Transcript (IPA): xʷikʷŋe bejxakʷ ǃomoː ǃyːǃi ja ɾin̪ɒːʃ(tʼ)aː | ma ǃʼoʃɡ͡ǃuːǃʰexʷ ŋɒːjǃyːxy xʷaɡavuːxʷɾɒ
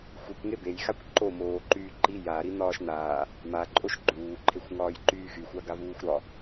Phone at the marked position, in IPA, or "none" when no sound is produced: n̪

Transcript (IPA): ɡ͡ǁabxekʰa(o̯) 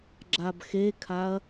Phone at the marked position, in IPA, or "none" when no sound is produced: ɐ̯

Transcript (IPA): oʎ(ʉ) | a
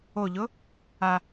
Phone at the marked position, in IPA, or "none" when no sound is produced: ʊ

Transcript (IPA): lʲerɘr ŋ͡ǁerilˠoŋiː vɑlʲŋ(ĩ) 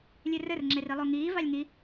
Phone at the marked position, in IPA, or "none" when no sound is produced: i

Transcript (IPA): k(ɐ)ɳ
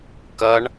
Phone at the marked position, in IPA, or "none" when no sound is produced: ɐ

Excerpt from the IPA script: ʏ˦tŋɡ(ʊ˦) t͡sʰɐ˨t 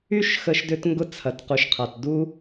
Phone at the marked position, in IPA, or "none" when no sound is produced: ʊ˦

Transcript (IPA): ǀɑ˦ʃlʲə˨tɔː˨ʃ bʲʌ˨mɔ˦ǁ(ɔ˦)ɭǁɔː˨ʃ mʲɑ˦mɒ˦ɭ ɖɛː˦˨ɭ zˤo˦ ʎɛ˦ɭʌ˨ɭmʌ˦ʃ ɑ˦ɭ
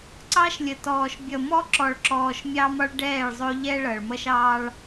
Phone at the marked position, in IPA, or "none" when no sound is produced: ɔ˨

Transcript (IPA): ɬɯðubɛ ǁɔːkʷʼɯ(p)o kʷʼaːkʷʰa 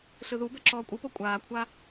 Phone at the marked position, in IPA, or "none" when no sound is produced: p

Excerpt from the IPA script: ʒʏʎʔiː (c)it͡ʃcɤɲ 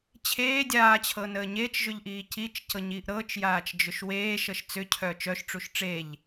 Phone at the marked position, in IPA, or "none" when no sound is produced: c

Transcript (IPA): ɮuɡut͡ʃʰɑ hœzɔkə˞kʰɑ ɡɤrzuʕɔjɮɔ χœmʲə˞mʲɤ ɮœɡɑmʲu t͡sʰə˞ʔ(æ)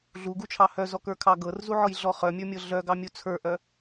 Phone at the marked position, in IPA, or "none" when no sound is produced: œ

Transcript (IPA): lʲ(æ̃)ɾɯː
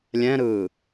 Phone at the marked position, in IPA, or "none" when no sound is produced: ɛ̃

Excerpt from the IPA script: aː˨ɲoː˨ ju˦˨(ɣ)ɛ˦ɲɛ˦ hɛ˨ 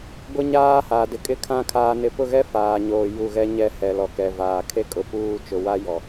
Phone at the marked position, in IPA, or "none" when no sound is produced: ɣ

